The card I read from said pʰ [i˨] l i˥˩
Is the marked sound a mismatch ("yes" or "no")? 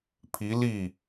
yes